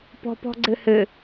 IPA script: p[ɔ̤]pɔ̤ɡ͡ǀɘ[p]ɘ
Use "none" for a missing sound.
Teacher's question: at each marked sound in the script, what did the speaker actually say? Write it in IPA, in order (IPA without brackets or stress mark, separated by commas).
ɔ̤, h